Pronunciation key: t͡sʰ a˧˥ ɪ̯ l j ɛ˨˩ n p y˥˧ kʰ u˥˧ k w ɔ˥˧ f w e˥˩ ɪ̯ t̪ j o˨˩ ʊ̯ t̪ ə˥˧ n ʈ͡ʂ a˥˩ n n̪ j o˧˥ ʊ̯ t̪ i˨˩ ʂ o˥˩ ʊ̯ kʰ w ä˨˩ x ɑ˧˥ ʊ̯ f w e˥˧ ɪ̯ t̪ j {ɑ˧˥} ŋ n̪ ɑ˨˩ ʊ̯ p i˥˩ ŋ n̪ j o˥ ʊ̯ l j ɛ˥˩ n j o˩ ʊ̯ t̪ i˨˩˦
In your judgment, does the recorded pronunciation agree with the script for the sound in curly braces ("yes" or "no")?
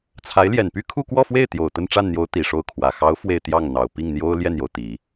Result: no